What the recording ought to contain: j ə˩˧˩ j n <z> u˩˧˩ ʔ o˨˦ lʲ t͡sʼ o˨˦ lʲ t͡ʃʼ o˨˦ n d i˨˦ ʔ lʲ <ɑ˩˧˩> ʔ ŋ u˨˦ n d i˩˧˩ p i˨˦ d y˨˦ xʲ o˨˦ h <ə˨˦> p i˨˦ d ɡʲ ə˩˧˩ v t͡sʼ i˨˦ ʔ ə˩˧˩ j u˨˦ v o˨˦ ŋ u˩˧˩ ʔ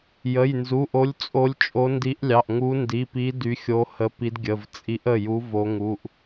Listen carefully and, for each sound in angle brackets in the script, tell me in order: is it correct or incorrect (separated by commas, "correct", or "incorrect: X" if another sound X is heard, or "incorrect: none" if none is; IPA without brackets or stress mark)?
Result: correct, correct, correct